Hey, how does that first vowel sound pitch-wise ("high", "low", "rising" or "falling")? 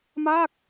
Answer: falling